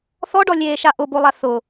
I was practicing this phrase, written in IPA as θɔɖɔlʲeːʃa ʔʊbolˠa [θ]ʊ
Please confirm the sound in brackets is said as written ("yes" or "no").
yes